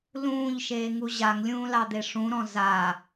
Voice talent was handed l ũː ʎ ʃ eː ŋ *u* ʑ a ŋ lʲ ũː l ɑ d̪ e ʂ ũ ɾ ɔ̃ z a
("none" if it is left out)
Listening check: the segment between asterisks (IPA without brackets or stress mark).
u